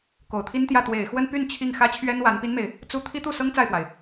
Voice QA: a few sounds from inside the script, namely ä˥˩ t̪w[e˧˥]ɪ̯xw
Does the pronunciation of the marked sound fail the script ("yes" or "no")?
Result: yes